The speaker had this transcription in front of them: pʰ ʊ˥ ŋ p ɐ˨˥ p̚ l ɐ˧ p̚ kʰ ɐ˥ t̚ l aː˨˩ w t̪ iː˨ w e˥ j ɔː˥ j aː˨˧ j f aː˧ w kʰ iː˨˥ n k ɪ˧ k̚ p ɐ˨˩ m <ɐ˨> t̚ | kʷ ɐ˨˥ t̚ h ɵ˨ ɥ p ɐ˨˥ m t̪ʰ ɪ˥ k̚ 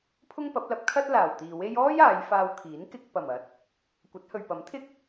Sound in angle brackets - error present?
no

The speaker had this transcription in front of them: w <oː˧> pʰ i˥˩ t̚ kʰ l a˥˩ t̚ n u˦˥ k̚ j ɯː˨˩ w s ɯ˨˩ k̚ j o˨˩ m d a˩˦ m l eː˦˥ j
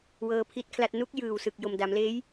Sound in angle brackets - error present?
yes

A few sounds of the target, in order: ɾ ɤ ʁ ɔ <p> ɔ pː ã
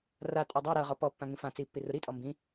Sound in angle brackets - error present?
no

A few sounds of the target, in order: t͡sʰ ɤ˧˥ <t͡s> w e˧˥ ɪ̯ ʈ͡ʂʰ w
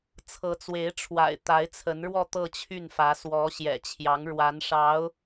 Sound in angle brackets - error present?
no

